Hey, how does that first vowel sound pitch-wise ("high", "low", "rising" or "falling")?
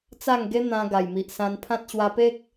falling